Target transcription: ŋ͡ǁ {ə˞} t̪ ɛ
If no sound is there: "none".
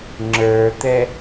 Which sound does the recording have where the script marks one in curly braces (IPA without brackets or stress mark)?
ə˞